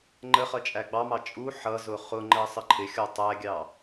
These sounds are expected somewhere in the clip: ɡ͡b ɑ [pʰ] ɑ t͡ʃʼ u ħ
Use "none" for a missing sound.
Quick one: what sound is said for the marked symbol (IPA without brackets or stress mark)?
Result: m